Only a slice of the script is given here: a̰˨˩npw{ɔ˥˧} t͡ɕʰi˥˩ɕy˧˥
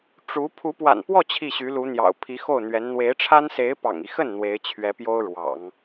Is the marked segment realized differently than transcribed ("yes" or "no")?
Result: no